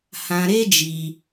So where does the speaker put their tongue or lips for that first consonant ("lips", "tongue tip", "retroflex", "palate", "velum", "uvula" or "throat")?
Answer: throat